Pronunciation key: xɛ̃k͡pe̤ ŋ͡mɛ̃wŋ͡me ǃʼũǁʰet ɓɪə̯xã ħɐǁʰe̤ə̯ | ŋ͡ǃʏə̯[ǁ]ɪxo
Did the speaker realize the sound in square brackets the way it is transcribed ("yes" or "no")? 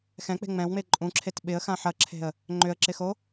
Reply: yes